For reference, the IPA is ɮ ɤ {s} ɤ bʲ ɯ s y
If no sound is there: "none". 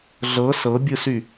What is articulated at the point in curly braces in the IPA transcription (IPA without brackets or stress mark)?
s